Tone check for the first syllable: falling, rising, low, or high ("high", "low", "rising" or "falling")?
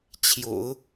low